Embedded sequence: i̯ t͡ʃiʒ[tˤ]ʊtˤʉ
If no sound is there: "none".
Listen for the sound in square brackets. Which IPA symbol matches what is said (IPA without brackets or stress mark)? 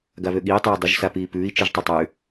tˤ